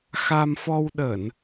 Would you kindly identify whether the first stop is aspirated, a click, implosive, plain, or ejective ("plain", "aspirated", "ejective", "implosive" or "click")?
implosive